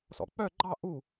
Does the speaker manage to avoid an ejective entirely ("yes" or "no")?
yes